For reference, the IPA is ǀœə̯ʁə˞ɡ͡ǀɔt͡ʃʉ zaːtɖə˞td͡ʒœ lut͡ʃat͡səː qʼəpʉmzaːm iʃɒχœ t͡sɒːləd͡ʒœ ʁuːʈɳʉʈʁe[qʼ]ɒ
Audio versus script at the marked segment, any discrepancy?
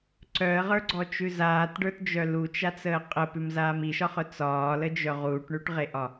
yes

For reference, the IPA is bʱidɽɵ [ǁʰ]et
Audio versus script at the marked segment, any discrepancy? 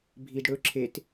no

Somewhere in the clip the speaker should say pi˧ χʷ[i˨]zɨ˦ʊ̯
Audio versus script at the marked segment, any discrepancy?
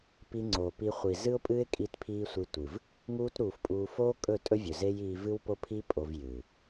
no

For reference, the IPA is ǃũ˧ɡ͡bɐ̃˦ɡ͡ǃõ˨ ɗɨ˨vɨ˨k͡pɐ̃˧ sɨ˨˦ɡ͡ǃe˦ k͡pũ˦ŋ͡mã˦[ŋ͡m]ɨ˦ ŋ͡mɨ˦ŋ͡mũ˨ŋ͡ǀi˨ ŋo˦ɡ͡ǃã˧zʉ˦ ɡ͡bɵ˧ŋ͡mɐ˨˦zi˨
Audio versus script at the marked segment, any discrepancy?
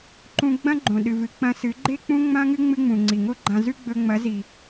yes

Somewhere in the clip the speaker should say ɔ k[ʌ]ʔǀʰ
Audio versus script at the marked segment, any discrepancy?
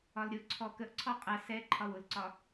yes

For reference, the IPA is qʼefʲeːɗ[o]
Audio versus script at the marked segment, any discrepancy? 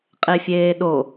no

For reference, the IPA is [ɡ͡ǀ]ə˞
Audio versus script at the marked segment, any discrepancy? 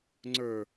yes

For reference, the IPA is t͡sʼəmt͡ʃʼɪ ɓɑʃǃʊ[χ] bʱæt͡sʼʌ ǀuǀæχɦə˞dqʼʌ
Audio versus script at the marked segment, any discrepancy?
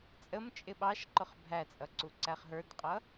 no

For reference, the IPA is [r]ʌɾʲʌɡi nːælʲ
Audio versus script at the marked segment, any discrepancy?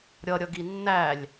yes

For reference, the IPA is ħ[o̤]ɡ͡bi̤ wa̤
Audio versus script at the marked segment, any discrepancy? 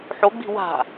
yes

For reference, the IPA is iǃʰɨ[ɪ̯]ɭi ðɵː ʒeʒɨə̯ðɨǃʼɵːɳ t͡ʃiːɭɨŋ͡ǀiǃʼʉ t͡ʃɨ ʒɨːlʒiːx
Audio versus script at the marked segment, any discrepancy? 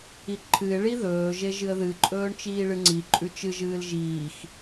no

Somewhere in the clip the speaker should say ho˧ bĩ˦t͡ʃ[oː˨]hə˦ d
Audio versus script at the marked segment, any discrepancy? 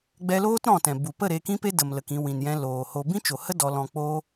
yes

